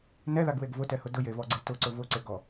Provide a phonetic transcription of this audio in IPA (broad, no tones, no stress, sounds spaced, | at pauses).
n ɛ ð a ɡ w e ɡ v ʊ t ɛ h ʊ d ʊ j e v ɔ ɡ͡ǀ e t ʊ ǀ ʊ v ʊ ǀ e ɡ ɔ